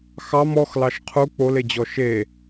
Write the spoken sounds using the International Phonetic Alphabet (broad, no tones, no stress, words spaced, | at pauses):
xɑm ɔxlɑʃ qʰu k͡poled͡ʑɔ ʃe